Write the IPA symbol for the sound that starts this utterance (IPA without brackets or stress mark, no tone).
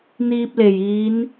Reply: n̪